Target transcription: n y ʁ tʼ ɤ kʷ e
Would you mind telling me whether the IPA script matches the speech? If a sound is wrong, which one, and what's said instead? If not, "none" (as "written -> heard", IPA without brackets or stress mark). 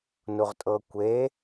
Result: y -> u